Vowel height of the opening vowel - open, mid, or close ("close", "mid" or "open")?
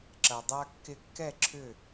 open